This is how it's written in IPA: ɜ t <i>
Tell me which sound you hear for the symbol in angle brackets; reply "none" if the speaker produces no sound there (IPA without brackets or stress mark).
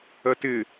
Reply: ɪ